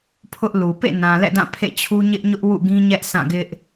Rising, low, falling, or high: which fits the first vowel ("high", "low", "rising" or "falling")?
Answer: high